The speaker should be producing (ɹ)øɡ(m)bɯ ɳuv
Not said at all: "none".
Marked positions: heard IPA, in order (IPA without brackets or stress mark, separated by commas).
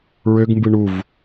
ɹ, m